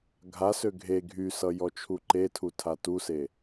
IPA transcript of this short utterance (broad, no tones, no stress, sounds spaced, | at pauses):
ɡʱ a s ø ɡʱ e ɡʱ y s ʌ j ɔ t͡ʃʰ u ǃ e tʰ u tʰ a t u s e